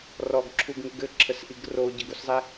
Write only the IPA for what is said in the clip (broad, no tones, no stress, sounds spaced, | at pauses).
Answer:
r ɔ ɡ ǁʰ u ɡ ŋ u ɡ ɘ ǁʰ ə s ʔ i ɡ r o ɟ ə ɡ u s zˤ e